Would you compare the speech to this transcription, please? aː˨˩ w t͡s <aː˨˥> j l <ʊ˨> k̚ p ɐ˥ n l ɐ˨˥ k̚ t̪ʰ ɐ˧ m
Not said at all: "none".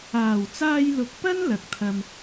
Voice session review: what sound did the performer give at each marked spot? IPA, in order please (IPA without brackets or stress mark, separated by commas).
aː˧, ʊ˨